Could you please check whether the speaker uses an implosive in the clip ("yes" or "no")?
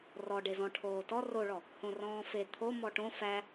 no